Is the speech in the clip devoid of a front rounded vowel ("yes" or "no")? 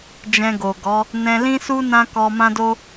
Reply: yes